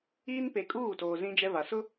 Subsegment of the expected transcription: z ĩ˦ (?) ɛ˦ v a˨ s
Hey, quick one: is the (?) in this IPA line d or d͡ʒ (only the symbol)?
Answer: d͡ʒ